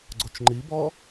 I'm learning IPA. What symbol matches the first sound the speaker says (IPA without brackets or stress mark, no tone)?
ɡ͡ǀ